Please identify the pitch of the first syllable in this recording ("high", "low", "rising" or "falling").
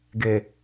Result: low